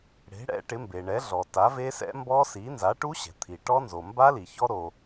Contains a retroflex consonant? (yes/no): yes